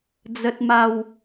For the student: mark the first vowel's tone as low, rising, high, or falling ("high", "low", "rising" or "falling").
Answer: low